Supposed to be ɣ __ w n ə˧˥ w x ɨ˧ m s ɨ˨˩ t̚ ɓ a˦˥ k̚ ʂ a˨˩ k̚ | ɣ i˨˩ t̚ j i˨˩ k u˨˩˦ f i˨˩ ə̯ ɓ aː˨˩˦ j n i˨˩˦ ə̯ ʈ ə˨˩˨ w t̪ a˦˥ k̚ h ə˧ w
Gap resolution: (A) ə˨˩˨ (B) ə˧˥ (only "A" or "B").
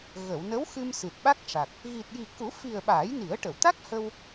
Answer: A